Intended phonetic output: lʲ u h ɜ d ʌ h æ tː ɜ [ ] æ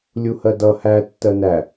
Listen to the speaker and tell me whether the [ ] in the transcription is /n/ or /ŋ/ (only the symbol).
n